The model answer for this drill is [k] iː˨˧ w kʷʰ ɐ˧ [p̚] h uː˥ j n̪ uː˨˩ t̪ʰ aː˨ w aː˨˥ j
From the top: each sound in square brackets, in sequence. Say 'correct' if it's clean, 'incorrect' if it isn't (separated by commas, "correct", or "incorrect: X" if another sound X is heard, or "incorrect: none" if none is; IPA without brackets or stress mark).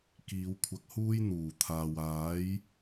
correct, incorrect: k̚